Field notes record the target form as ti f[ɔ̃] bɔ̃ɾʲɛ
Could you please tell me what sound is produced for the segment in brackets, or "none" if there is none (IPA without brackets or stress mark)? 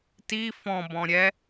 ɔ̃